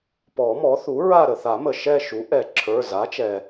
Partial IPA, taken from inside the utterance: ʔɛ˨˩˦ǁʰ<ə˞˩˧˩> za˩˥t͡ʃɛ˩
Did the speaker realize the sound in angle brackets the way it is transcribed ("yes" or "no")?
yes